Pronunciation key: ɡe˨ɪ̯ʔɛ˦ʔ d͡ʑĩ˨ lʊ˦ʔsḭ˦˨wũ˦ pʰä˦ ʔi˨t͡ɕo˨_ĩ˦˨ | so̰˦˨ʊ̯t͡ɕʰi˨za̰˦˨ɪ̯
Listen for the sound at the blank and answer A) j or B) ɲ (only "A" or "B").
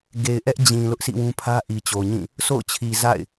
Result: B